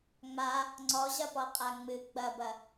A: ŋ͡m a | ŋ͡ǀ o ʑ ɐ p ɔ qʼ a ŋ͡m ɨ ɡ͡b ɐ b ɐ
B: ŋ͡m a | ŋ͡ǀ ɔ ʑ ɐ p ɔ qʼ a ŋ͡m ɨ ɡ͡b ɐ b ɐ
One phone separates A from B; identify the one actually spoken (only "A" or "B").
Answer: B